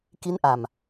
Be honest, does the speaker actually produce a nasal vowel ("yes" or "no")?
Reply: no